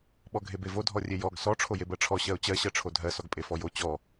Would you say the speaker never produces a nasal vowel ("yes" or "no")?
yes